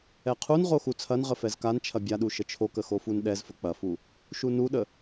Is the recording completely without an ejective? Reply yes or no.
yes